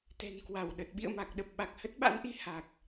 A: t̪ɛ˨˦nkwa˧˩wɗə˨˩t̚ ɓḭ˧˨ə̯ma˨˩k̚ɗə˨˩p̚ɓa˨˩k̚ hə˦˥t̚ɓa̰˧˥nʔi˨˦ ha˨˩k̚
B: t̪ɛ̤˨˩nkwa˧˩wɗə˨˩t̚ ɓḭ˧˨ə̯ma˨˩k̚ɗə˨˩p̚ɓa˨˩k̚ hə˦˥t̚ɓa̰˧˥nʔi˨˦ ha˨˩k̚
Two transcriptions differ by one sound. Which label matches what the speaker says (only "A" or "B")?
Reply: B